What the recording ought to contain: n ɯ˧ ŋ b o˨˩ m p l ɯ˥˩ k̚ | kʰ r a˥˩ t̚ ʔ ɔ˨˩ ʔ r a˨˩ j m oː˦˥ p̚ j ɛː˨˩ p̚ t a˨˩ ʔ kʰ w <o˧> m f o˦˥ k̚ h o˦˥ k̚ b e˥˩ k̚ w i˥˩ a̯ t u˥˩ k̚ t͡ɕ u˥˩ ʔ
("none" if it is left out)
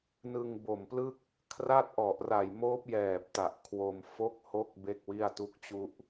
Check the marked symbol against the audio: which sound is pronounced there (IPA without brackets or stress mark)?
o˧